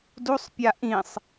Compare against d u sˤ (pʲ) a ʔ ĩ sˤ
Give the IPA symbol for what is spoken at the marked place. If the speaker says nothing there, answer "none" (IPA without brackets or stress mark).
pʲ